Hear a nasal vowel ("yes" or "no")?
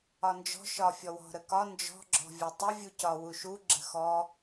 no